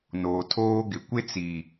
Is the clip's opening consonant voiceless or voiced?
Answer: voiced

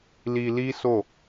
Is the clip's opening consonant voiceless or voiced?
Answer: voiced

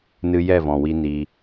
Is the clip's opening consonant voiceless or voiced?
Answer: voiced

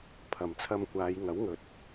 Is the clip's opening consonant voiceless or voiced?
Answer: voiceless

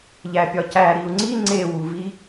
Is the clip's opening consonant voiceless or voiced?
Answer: voiced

